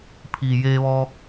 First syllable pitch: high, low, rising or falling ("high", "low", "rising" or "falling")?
low